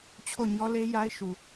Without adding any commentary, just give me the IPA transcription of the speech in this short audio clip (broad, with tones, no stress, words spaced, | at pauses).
t͡ɕʰo˦˨ɲɔ˦le˦ ja˦ɪ̯ ʃu˨